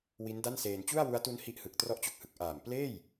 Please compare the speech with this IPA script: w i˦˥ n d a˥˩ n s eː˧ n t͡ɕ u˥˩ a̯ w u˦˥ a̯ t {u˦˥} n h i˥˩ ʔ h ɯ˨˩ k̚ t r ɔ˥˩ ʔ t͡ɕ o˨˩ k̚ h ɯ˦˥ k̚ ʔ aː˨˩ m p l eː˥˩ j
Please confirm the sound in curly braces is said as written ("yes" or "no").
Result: yes